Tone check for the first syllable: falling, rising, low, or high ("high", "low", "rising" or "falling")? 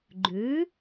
rising